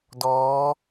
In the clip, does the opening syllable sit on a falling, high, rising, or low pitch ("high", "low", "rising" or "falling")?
rising